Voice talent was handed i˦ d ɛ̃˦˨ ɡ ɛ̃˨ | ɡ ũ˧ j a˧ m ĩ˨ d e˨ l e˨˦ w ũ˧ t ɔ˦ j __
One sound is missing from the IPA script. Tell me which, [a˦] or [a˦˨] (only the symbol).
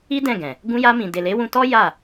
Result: a˦˨